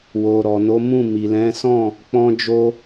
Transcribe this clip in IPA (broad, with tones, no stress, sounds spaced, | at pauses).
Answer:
w o˨ ɾ ɔ˨ n o˨˦ m ũ˦˨ m i˨ l ɛ̃˨˦ s ɔ̃˦˨ | k͡p ɔ̃˧ d͡ʒ o˧